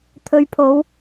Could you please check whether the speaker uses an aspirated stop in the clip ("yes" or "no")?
yes